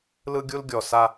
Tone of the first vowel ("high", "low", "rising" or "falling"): high